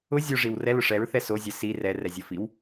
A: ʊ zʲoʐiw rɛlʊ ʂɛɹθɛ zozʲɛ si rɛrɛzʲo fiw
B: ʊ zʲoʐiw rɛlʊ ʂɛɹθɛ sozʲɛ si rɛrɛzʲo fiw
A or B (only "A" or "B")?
B